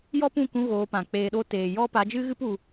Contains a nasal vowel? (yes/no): yes